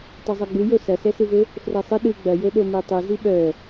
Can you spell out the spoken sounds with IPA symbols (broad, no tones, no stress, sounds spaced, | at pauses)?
tˤ œ zˤ œ ɡ͡b ɯ j o s ɐ s ɛ s ɯ v ɘ | f r ɛ sˤ ɘ ɗ ɯ ɡ͡b ɐ j o ɗ o m i tˤ ɯ z i ɓ œ